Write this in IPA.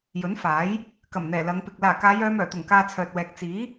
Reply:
jɵ˨˥nfaː˨˥j | kɐ˨˩mn̪ɛː˨˩ lɐ˨˧ŋpɪ˨k̚ laː˨˩ kaː˨˧jœː˨˧mœː˨˩t̪ʊ˨˩ŋ kaː˧t͡sʰœː˨t̚wɛː˨k̚ t͡siː˨˥

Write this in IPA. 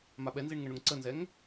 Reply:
maɓɛnziɳ ŋəɳʊŋǀənzɛŋ

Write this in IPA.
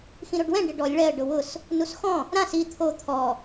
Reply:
xĩɾoɖwɛ̃ ɖɪɖɔlʲ ɭɛə̯ ɖʊwʊs | nusxɔ̃ | ɾãs i t̪ʰo t̪ʰɔ

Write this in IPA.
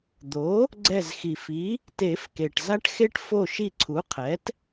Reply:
d̪o˩˥ | ɡ͡ǀɛ˧˩zxi˩fi˩˥ | te˨˩˦fke˩ʈ za˦ʈxe˦ʈ fo˧˩ʃi˧˩ ǀʰu˩˥qʰɛ˩˥t

